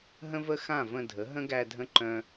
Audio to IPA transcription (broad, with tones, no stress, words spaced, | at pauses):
ɦə̃˦və˦xã˦˨ və̃˧ dʱə˨˦ɦə̃˦ɡæ˧ dʱə̃˦ǃœ̃˦